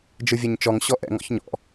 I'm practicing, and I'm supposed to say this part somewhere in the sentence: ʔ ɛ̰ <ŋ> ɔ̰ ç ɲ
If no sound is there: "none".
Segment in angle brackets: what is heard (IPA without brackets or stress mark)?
ŋ